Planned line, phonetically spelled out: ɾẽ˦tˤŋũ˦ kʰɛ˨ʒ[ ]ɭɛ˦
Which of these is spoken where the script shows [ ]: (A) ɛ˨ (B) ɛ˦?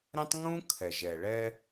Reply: A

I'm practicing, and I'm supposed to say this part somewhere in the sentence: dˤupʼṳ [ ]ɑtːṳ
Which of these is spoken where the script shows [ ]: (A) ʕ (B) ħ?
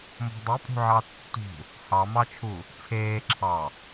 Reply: A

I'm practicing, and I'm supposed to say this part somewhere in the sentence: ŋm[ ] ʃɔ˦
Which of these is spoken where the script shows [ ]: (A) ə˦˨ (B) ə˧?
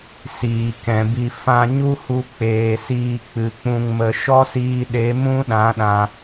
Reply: B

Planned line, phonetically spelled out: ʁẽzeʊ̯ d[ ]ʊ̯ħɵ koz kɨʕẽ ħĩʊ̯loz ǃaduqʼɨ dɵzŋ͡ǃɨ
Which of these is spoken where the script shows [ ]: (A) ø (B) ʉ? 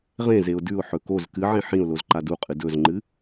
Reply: B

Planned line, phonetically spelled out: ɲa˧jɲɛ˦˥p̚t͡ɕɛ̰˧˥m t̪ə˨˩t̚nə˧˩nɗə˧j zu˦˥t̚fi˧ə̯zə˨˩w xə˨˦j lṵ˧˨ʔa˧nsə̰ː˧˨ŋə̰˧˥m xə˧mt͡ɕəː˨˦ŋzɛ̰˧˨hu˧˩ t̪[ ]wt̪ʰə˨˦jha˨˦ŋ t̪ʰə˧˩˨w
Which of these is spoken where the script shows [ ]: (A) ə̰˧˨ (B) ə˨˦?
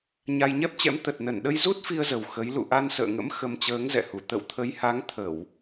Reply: A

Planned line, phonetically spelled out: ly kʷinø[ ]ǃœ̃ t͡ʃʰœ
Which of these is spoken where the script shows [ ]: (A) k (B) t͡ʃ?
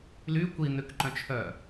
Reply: A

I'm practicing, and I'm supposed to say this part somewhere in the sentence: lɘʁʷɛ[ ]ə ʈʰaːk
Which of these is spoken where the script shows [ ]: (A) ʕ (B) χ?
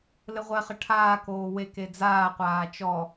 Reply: B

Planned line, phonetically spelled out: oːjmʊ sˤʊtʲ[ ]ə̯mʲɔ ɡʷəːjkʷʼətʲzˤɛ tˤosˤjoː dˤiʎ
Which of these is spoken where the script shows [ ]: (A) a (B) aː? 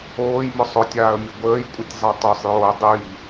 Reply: B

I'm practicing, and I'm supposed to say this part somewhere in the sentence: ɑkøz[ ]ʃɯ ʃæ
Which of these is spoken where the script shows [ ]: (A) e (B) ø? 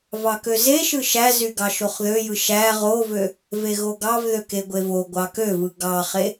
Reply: A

